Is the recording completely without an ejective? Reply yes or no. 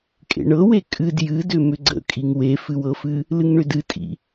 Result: no